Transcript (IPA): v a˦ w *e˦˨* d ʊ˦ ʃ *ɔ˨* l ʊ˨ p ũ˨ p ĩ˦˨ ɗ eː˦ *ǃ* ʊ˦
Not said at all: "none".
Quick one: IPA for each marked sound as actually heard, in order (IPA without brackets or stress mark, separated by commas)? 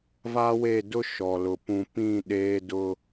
e˦˨, ɔ˨, d